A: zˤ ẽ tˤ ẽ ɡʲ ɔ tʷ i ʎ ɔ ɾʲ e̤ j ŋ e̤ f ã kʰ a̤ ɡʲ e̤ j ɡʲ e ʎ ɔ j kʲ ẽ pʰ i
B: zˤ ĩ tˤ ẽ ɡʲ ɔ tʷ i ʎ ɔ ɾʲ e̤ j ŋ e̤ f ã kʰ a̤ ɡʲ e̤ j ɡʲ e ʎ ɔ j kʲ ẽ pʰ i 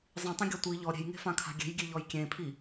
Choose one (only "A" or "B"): B